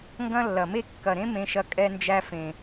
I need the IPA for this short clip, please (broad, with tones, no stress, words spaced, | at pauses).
ŋɡɐ̃˦lːɐ˨me˦ kːɐ˨ɾẽ˦ mẽ˧ʃɐ˧ kʼɛ˧nd͡ʒæ˧fẽ˨